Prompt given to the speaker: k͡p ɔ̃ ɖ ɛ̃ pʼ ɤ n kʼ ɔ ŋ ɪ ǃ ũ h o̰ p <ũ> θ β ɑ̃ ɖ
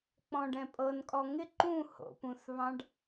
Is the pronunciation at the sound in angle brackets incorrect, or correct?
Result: correct